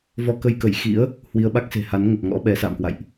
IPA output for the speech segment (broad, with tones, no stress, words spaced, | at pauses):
vɔ˧kə˧jkə˧˩j xḭ˧˥ə̯ | hwi˧ə̯ɓa˦˥k̚ se̤˨˩ha˨˦n ŋə˨˩p̚ ŋɔ̰˧˥ɓɛ˨˦sa̰ː˧˨mkwa̰˧˨jʔ